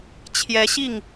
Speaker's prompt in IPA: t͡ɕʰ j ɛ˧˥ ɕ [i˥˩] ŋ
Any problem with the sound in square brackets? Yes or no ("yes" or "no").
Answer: no